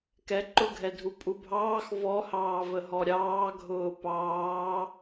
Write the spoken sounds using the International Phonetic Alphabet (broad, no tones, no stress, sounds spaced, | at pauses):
k ɛ ǃ ʊ ɡʱ ɛ dʱ u pʼ u bʱ ɑː x v ɔ h ɑː v ə ɦ ɔ ɾʲ ɑː ɡʱ ʊː p ɑː